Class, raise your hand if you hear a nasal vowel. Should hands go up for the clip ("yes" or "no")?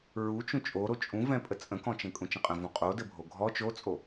yes